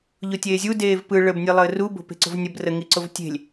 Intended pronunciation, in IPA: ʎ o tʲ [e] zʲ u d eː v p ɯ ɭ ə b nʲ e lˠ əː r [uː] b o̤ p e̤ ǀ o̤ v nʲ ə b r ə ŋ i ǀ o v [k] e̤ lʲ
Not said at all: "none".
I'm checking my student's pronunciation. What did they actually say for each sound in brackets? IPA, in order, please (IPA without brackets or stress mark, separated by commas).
eː, u, tʲ